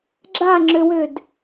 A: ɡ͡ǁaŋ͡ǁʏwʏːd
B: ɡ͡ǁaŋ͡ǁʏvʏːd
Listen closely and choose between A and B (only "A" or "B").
A